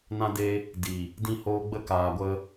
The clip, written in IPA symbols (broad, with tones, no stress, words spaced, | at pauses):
nã˧de˧ | di˨ | dĩ˧hoː˧ ɡ͡bə˧kaː˨ɡʷə˧